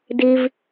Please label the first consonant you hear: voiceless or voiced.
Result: voiced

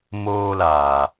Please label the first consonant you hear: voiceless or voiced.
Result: voiced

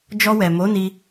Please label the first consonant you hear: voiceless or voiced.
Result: voiced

